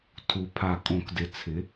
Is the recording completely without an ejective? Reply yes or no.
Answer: no